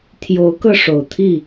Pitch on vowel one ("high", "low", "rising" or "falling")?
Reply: rising